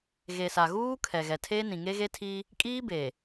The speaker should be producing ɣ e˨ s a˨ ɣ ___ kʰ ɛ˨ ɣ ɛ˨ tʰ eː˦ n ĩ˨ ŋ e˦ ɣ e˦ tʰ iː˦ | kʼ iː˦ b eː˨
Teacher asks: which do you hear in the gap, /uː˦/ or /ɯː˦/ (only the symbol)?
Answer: uː˦